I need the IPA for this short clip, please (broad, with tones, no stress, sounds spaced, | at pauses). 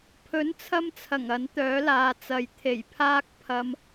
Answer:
pʰ ɵ˨˥ n t͡sʰ ɐ˧ m t͡sʰ ɐ˨˩ ŋ ɐ˨˥ n t̪ œː˨˥ l aː˨ t͡s ɐ˨ j t̪ʰ e˨˩ j pʰ aː˧ k̚ pʰ ɐ˨ m